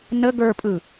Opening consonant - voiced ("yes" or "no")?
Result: yes